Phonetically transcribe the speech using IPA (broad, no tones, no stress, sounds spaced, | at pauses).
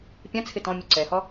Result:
pʲ ã t͡sʰ ɪ t ɔ̃ mʲ u ǀ ɛ h ɔ